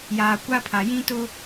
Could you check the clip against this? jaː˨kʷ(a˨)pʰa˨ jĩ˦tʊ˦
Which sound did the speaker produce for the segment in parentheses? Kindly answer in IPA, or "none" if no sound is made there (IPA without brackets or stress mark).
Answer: a˦